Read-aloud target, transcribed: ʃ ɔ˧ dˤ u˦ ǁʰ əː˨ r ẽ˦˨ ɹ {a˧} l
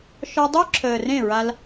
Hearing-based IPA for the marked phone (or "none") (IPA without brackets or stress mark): a˧